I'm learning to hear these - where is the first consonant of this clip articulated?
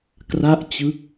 velum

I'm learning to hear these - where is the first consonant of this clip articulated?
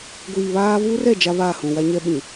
velum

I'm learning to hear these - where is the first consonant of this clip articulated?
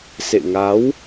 tongue tip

